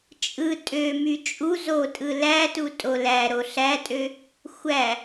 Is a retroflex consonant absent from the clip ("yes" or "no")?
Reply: yes